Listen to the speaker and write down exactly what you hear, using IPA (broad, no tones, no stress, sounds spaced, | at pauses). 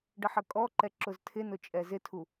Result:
ɖ ə ħ ə kʼ ɔ ǃ ɛ ǁ ʊ z tʰ ɪ n ʊ t͡ʃʼ ɛ z ɪ tʰ u